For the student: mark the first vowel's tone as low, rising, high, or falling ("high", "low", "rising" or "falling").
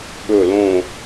low